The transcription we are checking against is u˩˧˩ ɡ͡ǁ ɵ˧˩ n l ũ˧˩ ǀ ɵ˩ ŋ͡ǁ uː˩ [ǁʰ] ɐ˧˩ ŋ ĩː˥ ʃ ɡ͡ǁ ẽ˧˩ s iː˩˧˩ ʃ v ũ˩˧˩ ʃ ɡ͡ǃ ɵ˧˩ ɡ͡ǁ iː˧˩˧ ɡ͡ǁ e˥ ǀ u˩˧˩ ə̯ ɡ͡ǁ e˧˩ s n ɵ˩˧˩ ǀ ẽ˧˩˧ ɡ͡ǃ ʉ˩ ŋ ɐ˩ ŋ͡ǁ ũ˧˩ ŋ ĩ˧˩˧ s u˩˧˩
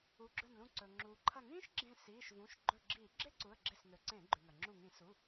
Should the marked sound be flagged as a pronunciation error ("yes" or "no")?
yes